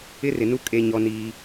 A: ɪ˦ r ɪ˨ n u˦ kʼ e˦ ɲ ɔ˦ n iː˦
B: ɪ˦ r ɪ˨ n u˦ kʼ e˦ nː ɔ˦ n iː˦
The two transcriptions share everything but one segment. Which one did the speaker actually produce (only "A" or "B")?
A